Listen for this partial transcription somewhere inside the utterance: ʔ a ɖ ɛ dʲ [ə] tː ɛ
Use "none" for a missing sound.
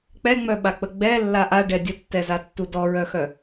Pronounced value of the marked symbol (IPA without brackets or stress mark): ə